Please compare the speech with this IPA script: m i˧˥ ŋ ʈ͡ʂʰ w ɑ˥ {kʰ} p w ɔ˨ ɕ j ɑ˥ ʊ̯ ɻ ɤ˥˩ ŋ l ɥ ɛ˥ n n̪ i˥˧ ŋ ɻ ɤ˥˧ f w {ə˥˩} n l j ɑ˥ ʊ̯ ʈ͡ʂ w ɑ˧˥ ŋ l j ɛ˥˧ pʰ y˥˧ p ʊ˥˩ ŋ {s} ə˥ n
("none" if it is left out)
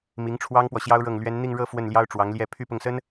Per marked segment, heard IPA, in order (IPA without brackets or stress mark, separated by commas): ŋ, ə˥˩, s